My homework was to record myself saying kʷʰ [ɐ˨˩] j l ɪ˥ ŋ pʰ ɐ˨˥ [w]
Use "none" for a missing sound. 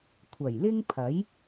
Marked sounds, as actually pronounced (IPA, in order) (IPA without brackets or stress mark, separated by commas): ɐ˨˩, j